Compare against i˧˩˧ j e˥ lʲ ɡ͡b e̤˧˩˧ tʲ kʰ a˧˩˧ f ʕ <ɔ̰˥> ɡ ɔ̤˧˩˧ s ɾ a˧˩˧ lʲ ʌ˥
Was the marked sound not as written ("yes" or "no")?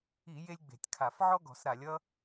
yes